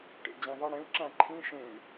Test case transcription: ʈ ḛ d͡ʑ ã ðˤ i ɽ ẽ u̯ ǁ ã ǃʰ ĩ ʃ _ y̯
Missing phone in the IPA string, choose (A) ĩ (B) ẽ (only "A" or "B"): B